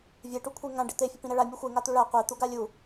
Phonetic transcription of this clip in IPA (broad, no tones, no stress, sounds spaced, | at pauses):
vʲ e ʈ u kʷʰ e ŋ ã ɖ e t̪ e fʲ ʊ p ĩ ɾ ɛ ɭ a mʲ u xʷ e ŋ a t̪ u ɭ a qʷ e t̪ u ɡ a lʲ u